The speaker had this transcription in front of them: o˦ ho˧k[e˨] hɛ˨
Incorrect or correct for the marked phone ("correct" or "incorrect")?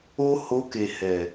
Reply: correct